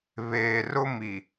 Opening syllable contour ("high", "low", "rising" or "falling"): low